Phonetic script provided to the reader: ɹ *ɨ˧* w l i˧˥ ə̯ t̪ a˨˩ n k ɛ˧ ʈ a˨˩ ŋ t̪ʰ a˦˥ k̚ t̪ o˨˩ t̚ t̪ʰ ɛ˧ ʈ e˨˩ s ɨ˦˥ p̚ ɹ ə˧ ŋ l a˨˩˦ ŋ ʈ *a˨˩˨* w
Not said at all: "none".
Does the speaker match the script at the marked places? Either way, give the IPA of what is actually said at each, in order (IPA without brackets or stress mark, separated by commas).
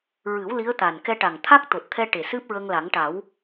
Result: ɨ˨˩˦, a˨˩˦